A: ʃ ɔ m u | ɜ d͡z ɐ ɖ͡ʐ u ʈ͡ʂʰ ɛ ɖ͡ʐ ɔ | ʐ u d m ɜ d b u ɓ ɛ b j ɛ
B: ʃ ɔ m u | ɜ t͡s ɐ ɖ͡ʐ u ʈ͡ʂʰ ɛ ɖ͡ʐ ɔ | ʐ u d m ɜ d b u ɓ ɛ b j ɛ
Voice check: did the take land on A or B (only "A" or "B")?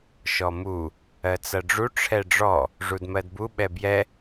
B